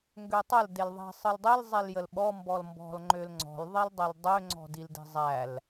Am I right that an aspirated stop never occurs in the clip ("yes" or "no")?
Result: yes